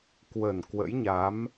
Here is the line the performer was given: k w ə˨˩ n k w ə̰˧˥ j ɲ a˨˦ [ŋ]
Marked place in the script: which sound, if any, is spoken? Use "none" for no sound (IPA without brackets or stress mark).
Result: m